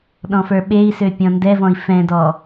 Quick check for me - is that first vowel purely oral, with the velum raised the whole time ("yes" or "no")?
no